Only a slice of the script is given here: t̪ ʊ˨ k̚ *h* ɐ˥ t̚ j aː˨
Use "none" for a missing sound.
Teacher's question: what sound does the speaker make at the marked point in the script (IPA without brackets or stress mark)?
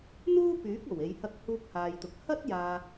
h